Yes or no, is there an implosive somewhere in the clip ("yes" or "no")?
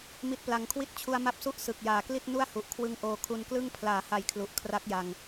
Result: no